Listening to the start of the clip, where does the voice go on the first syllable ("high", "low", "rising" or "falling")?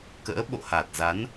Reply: rising